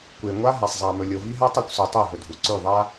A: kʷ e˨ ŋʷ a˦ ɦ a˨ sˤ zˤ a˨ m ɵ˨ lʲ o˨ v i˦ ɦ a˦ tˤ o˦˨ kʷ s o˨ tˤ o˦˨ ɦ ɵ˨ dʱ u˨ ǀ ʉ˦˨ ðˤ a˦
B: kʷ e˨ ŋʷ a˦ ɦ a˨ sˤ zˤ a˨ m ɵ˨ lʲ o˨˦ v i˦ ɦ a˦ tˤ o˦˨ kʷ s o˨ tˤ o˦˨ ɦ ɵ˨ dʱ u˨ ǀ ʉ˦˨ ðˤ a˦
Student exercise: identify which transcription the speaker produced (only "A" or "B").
A